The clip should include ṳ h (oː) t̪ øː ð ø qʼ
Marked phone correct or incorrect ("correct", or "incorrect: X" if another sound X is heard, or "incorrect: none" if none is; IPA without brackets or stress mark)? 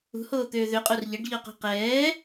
correct